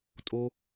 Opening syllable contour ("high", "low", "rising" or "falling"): high